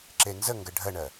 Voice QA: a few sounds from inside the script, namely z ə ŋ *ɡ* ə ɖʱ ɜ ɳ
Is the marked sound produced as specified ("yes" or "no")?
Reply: yes